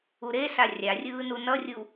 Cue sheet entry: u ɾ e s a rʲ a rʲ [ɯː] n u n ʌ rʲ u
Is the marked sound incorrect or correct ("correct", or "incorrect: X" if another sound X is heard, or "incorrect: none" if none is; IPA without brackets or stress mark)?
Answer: correct